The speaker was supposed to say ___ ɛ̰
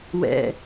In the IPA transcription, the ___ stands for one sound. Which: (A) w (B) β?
A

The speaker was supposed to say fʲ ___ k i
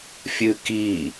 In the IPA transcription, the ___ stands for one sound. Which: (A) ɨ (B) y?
A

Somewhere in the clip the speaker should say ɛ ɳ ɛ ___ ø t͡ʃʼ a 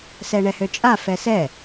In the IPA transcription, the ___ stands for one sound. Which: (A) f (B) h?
B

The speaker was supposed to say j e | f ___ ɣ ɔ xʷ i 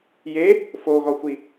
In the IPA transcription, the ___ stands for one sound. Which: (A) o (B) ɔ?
A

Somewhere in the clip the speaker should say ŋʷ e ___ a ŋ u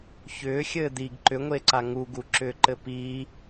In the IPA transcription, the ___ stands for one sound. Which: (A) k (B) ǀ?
B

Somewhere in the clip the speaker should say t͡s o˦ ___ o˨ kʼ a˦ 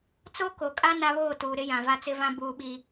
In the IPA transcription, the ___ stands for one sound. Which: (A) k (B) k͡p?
A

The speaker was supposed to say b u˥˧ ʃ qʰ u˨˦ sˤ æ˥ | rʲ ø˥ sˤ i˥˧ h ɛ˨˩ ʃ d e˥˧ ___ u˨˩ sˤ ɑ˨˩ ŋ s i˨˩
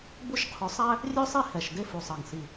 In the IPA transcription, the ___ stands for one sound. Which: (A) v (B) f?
B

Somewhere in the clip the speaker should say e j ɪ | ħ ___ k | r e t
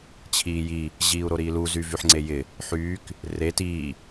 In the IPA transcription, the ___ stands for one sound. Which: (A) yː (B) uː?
A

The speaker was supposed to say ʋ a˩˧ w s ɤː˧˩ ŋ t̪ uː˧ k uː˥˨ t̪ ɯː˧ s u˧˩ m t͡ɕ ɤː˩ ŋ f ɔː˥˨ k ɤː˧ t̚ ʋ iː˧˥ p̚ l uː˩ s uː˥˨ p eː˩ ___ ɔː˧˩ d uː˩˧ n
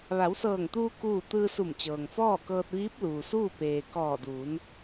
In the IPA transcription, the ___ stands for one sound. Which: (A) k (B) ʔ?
A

